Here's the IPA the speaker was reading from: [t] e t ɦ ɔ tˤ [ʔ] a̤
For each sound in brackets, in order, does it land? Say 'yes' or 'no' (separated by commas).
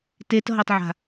yes, no